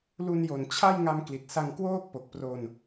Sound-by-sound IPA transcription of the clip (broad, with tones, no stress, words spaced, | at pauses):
lu˧njo˨˩n t͡ɕʰa˥˩j ŋa˧mkli˨˩t̚sa˧ŋ kwoː˥˩k̚po˨˩k̚pro˧n